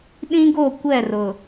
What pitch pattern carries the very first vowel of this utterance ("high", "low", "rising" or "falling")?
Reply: high